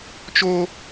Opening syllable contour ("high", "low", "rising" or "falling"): high